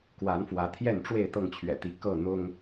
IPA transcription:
kwa˨˦nfwä˨˦t̪ʰjɛ˥˨nʈ͡ʂwe˥˨ɪ̯ t̪ɤ˥˨ŋt͡ɕʰɥɛ̰˨˩t̪i˨˦ kɤ˥˨n̪ʊ˦ŋ

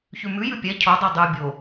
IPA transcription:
çʉmʉjʉ pʲɛ cʰodˤe dˤʉ bʲo

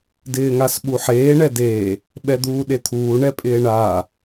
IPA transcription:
dɪːŋasɓuħeː ɳɛdeː | ɓɛd̪uːɗet̪ʰuː ɳɛpʼɪːɳaː

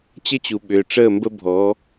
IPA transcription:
t͡ɕə˦t͡ɕu˨ɓʏː˨ ʈ͡ʂəː˦˨ mbə˦bʱɔ˨˦

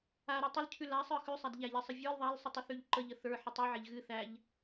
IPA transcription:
aɾɨ tˤəlcʰʉ lasˤə˞ xʉsˤæd ʎæʎɛsˤə vʲə˞l ðˤalsˤʉtˤɨθʉʎ ǃəʎə θə˞ħɨtˤ ʉʕɛʎ ɣɨ θæʎ

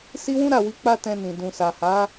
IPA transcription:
si˦wũ˦ ɾa˦˨wi˨˦ k͡pa˧ tɛ̃˧nĩ˨ dũ˨sa˨ha˨˦

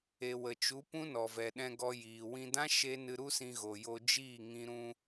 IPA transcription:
e˨wə˨t͡ʃu˨˦ pũ˦nɔ˨vɛ˨ ɗɛ̃˧ɡɔ˧ jiː˨wĩ˧dã˦ ʃe˦ nɨ˧ɾu˦sĩ˧ɣo˨ jo˧ d͡ʒiː˦˨ŋĩ˧ɾũ˧

